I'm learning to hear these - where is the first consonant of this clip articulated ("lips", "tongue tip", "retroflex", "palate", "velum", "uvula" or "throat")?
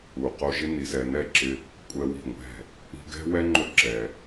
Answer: uvula